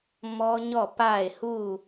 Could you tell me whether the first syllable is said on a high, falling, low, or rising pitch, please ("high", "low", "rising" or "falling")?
high